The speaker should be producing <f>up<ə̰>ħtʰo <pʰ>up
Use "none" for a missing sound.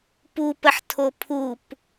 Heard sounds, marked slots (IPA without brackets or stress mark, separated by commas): p, ə, pʰ